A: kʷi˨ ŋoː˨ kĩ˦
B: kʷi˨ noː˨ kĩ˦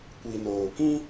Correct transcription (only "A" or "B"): B